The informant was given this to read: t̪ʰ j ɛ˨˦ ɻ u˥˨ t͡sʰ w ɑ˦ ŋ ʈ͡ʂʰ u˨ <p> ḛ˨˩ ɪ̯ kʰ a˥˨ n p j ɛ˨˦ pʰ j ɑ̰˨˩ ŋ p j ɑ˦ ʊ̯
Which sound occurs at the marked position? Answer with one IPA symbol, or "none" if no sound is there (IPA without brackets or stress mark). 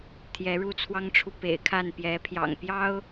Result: p